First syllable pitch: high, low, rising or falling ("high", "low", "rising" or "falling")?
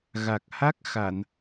low